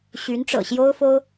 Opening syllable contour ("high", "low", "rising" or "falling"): rising